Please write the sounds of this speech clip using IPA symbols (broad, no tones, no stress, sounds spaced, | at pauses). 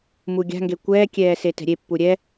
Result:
m u ɡʲ a̤ ŋ ɡ e kʷ ɛː kʲ ɛː s e t ɛ̤ ɾʲ e pː u ɾʲ ɛ